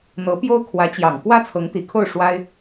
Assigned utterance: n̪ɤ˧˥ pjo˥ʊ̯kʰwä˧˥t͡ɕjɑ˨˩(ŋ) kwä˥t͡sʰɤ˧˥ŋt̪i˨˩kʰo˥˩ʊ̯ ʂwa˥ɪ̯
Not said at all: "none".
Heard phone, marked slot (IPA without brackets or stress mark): ŋ